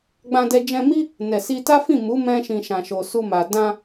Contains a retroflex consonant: no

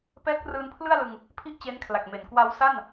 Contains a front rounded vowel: no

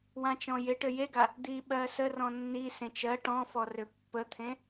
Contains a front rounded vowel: yes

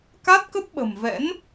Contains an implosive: yes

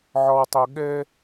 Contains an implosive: yes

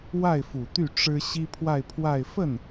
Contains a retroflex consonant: yes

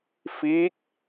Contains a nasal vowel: no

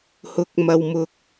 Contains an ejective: no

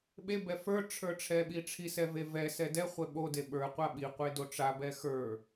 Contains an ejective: no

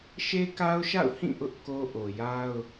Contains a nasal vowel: yes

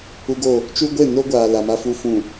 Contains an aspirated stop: no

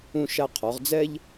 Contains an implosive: no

